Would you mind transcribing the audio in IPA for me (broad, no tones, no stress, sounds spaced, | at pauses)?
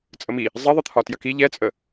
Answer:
t͡sʼ ə m i | zˤ i ðˤ ə t̪ʰ ɒ t j ɐ k i ʎ ɛ t͡sʼ ə